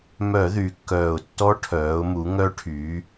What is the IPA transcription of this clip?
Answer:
m œ˧˩˧ ð y˩˧ kː œː˨˩ ʊ̯ tː ɔ˧˥ ʈʰ œː˩˧ ʊ̯ m u˩˧ ŋ œ˧˥ ʈʰ yː˩˧

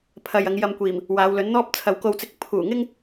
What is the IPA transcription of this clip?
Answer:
pʰ ɐ˨ j ɐ˨˧ ŋ j ɐ˧ m kʷ iː˨˩ m | w aː˨˧ w l ɵ˨˥ n n̪ ɔː˥ p̚ t͡sʰ ɐ˨ w k o˧ w t͡s ɪ˧ k̚ pʰ uː˨˩ ŋ ɪ˥ ŋ

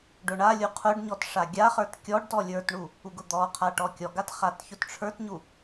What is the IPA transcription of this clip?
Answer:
ɖ ʊ ɳ a lʲ u qʰ ʊ ɖ ɲ ɔ t ʂ a ɡʲ a χ ə˞ t kʲ ɔ ɖ t ɔ lʲ ə˞ t ɳ u | u ɡ ʊ d̪ ɔ qʰ a ʈ ɔ kʲ ɔ ɡ a t χ a t ç ʊ t ʈ͡ʂʰ ə˞ t ɲ u

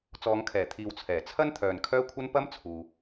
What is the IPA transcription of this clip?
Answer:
t͡s ɔː˨˧ ŋ kʰ ɛː˨˩ t̪ʰ iː˨ w t͡sʰ ɛː˨˩ t͡sʰ ɐ˥ n t̪ʰ œː˨ n kʰ œː˥ kʷʰ ɐ˥ n p ɐ˥ m t͡sʰ uː˧

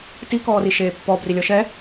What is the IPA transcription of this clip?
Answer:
t i k ɔː r i ʃ eː pː ɔ b r i lʲ ɔ ʃ ɛ

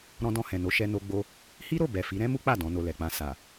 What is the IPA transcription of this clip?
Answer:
ɾ ɔ̃˧ d ɔ̃˧ h ɛ̃˨ n o˨˦ ʃ ɛ˦ n o˦ ɡ͡b o˧ | h i˦ ɾ o˦˨ b ɛ˨ f i˨˦ ɾ ɛ̃˦ m u˦ k͡p a˦˨ d ɔ̃˨˦ n o˧ l ɛ˨ k͡p ã˧ s a˨

